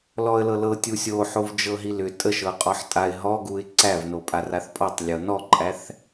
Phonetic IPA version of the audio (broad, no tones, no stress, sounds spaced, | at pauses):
l ɔ ə̯ l ɤ l ɤ tʲ u sʲ o ħ o v d͡ʒ ɤ ɦ i l ʏ tʼ ə ʃ ɤ qʼ ɔ ħ tʼ a ɪ̯ ɦ ɔ ɡ u ɪ̯ ǀ æ v n o pʼ a r a θ pʼ ɔ tˤ lʲ ɤ n ɔ ǃʼ æ θ